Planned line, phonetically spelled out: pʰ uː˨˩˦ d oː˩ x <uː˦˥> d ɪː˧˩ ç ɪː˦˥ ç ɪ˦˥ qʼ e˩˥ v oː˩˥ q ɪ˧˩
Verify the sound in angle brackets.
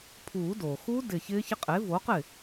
correct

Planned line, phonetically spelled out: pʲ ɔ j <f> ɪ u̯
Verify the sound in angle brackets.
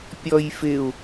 correct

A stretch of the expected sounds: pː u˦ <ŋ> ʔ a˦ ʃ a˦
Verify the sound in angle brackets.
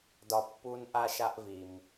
incorrect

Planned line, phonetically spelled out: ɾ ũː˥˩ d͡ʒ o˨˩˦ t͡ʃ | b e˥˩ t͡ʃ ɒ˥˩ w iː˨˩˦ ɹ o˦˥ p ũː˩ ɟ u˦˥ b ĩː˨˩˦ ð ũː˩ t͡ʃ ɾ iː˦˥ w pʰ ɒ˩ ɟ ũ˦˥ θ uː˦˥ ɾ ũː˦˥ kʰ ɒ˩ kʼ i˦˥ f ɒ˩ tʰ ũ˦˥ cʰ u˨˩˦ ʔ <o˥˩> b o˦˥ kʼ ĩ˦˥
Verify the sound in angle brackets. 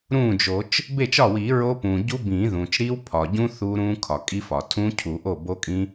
correct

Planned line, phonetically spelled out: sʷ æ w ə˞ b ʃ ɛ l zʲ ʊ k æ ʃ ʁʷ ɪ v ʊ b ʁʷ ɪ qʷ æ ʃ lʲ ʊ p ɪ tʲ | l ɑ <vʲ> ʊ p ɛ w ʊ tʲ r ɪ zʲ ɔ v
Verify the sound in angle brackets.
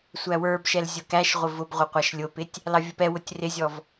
correct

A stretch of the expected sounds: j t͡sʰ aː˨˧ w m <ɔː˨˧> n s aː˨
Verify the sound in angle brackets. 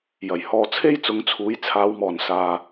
incorrect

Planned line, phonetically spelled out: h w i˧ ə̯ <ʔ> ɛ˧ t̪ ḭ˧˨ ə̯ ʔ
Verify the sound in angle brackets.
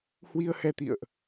incorrect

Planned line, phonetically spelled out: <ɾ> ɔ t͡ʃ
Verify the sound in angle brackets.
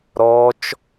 correct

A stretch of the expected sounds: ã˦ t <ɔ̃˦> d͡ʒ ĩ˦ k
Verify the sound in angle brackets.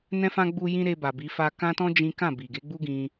correct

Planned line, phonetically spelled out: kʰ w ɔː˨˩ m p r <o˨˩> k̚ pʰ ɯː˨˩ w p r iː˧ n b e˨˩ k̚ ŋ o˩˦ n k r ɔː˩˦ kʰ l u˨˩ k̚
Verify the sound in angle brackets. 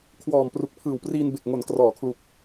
incorrect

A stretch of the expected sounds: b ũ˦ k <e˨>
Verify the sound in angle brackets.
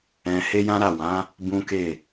incorrect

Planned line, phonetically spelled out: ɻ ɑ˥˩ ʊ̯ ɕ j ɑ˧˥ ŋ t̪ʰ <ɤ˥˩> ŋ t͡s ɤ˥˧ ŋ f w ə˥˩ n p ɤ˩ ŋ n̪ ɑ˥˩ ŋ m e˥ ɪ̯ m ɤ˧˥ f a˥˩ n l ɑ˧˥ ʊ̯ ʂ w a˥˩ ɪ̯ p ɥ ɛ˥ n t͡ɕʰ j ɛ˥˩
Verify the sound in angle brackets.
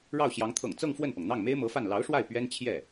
incorrect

